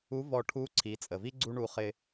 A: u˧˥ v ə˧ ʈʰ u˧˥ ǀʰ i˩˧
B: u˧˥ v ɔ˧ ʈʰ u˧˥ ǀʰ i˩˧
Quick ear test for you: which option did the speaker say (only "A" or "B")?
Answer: B